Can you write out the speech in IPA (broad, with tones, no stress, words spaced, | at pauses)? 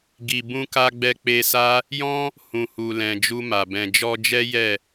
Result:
ɡi˨ bũ˧ka˧ ɡ͡bɛ˧k͡pe˧sa˦ | jɔ̃˦ | hũ˨hu˨lɛ̃˨ d͡ʒu˧ma˨ bɛ̃˨ d͡ʒɔ˧d͡ʒɛ˦ jɛ˦˨